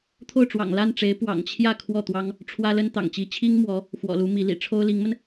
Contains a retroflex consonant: yes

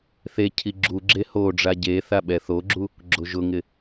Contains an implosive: yes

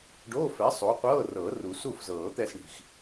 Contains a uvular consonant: yes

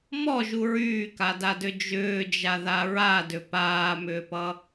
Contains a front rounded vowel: yes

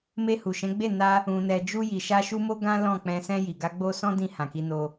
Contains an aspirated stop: no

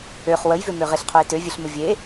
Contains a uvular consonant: yes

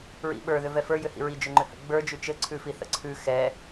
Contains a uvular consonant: no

